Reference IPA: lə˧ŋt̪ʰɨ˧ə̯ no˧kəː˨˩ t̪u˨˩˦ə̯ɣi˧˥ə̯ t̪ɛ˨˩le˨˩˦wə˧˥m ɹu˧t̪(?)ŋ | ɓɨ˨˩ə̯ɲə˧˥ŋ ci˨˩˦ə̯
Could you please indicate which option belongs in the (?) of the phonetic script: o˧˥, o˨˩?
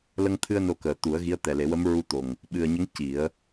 o˨˩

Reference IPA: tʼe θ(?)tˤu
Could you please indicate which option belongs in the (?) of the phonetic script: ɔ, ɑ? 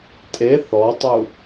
ɔ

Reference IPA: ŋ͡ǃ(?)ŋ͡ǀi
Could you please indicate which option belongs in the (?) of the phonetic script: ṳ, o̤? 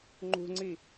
ṳ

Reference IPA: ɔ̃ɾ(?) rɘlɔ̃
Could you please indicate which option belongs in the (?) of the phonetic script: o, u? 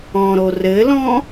o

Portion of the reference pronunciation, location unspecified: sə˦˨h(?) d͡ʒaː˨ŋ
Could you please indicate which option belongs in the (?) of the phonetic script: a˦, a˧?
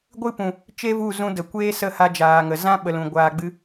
a˧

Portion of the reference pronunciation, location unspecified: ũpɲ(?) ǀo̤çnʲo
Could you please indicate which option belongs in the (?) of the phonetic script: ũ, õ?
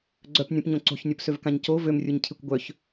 õ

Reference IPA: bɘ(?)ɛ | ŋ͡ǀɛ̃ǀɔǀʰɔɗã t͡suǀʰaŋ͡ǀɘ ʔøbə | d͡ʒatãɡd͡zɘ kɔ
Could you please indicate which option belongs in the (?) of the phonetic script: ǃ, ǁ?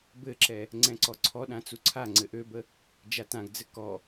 ǁ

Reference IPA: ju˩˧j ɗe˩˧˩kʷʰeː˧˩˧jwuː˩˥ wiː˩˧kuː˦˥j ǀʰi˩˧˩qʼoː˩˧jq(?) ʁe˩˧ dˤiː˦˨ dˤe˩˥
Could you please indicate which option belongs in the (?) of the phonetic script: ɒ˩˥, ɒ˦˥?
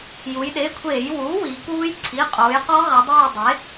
ɒ˦˥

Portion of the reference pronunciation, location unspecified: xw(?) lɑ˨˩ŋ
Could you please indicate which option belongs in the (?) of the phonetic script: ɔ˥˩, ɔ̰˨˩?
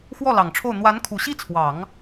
ɔ˥˩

